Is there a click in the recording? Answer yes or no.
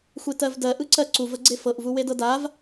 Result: yes